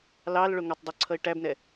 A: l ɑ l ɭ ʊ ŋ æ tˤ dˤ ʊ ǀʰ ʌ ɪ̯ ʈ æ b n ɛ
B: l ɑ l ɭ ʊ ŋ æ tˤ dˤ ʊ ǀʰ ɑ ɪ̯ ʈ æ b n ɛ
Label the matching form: A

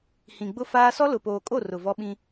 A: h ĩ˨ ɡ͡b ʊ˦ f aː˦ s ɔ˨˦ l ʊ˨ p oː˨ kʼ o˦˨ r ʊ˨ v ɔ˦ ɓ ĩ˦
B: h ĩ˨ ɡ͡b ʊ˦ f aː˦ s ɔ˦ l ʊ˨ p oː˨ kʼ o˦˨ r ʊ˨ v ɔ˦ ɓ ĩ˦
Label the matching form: B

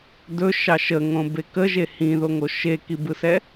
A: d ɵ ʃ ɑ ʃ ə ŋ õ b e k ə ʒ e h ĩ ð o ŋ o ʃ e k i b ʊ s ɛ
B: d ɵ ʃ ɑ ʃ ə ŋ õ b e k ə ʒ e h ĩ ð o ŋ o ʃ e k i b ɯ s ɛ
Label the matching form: B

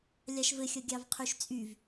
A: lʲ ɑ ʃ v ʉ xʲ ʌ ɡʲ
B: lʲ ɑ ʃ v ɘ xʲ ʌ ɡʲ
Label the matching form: B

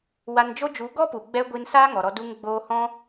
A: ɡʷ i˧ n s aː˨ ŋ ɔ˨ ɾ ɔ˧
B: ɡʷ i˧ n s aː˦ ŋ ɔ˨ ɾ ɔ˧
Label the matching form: B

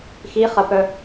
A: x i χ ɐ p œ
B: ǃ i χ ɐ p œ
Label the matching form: A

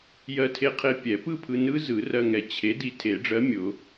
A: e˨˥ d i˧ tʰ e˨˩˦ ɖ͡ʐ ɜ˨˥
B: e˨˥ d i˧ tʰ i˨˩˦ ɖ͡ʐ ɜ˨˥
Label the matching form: A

